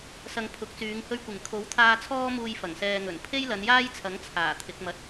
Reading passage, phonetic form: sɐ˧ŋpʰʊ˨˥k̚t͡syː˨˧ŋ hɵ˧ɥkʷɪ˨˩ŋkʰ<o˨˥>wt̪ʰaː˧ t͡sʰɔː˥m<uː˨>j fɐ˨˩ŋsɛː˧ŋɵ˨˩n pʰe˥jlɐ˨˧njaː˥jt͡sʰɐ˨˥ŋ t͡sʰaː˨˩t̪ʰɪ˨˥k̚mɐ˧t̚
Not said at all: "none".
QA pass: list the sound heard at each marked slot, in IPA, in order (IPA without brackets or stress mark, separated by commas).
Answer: o˨˥, uː˧